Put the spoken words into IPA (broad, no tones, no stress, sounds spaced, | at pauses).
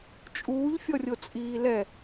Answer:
t͡ʃʼ uː ʎ fʲ ɔ rʲ o t͡sʼ iː l ɛ